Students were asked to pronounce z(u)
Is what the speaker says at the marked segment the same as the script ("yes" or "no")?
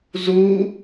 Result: yes